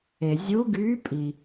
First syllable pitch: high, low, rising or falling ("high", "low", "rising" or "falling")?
low